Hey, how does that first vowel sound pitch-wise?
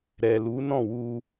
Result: low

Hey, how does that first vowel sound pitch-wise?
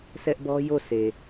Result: high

